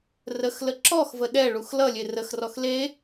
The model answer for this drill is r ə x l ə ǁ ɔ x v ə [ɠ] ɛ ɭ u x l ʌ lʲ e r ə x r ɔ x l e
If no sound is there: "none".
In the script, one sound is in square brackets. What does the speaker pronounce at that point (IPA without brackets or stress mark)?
ɗ